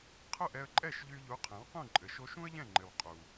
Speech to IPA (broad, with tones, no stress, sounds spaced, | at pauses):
qʰ ʊ˥˩ ʔ ɛ˧ ə̯ ǃʼ ɛ˥˩ ʃ ʎ y˧ ʎ u˩˥ qʰ ɛ̃˩˥ w q ũ˥˩ ǃʼ ɘ˩ ʃ o˧ ʃ ũ˥ ə̯ ʎ ɛ̃˥˩ ŋ͡ǃ ɘ˩ w qʼ u˩